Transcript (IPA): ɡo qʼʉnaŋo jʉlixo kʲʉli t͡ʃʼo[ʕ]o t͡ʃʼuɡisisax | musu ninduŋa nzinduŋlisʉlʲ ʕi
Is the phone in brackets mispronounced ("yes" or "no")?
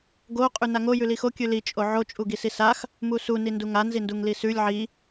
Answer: no